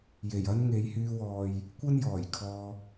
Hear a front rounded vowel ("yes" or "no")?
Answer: yes